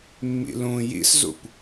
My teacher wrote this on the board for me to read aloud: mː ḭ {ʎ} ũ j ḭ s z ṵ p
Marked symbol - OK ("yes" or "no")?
no